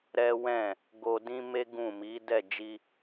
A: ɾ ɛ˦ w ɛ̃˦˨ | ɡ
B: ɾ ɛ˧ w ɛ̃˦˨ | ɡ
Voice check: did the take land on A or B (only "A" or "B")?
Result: A